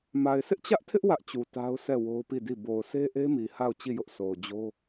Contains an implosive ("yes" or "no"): no